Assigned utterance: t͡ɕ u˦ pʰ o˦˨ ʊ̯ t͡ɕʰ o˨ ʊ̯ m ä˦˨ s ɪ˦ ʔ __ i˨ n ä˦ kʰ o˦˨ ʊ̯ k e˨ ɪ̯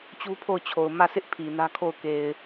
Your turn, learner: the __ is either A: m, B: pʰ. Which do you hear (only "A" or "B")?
B